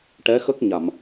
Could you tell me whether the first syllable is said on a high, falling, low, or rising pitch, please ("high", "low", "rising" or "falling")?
rising